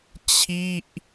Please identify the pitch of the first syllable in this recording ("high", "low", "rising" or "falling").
falling